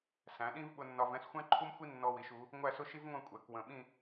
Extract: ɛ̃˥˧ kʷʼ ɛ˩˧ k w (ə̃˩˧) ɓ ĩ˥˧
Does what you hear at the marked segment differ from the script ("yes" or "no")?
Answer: yes